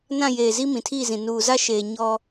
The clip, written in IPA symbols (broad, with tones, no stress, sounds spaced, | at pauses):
n ã˦˨ j eː˨ z i˦ m ĩ˨ tʰ iː˦˨ z ĩ˨ n uː˨ z a˦ ʃ eː˨ ɲ ɔ˦